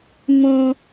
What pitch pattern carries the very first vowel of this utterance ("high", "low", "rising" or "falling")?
low